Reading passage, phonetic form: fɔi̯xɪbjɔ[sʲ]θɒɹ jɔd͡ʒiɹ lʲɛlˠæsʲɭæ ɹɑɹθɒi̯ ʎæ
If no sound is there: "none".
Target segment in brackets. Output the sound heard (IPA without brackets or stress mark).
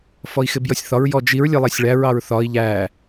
sʲ